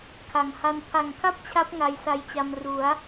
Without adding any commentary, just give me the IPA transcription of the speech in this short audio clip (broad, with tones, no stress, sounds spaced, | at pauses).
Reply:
kʰ a˨˩ ŋ h a˧ n pʰ a˨˩ ŋ kʰ a˥˩ p̚ t͡ɕʰ a˦˥ p̚ ŋ a˧ j s a˧ j t͡ɕ a˧ m r u˩˦ a̯